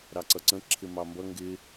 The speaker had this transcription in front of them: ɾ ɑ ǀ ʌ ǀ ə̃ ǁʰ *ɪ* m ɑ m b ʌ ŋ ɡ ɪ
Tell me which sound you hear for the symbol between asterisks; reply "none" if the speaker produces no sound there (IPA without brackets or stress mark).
ɪ